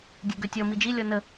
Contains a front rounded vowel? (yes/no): yes